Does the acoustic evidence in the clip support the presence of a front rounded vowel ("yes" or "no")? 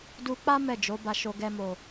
no